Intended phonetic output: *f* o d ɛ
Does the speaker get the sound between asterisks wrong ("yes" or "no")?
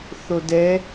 yes